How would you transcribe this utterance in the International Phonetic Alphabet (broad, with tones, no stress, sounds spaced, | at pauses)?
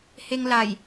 h e˧ ŋ l a˨˩ j